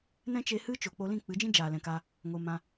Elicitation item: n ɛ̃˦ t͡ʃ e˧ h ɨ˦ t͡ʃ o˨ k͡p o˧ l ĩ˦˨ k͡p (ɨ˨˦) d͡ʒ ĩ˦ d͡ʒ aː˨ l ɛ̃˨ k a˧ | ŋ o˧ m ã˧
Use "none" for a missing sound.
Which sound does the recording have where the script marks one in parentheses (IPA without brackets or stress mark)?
ɨ˨˦